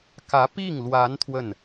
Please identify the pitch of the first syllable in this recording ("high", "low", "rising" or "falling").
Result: rising